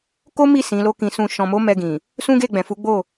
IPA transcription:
k o˦ m i˦˨ s ĩ˨˦ l o˦ k ĩ˧ s ũ˧ ʃ ɔ̃˨ m o˨˦ m ɛ˧ ɡ ĩ˨ | s ũ˦ ɡ e˦˨ ɡ͡b ɛ̃˨ f u˨˦ ɡ͡b o˦˨

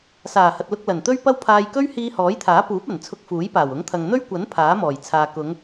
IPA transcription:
s aː˨˩ h ɐ˨ t̚ l ʊ˧ k̚ l ɐ˨˩ n t̪ ɵ˥ ɥ p ɐ˥ w pʰ aː˧ j k ɵ˥ ɥ h iː˧ h ɔː˨˥ j t̪ʰ aː˨˥ p uː˨˥ p̚ ɐ˨˩ n t͡sʰ ʊ˧ k̚ f uː˨˥ j p aː˨˩ w ʊ˨˥ ŋ t̪ʰ ɐ˨ ŋ n̪ ɵ˥ ɥ kʷ ɐ˨˥ n pʰ aː˨˥ m ɔː˨˩ j t͡sʰ aː˨ k ʊ˨˧ ŋ

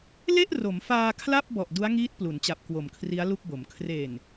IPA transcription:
l e˥˩ ʔ r o˩˦ m f aː˧ kʰ l a˥˩ p̚ b ɔ˨˩ ʔ d u˦˥ a̯ ŋ iː˦˥ t̚ p l u˩˦ n t͡ɕ a˨˩ p̚ k w o˨˩ m kʰ r i˦˥ a̯ l u˥˩ k̚ b o˩˦ m kʰ r e˨˩ n

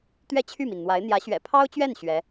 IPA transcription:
t̪ ɥ ɛ˥˧ t͡ɕʰ y˥˩ m i˩ n n̪ w a˧˥ ɪ̯ n̪ j ä˧˥ ɕ ɥ ɛ̰˨˩ pʰ ɑ˥ ʊ̯ t͡ɕ ɥ ɛ˥˩ n ɕ ɥ ɛ˧˥

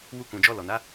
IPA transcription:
w u˧ k ũ˨ d͡ʒ ɔ˧ l ɔ˨ n a˨˦

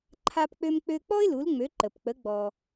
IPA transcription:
ǃʰ a˧ p k͡p ø˧ m k͡p ø˧ k͡p ɔ˥ ɪ̯ l u˩˥ l ŋ͡m ø˩˥ ǃ ə˩ p k͡p ə˩˥ ɡ͡b ɔ˩

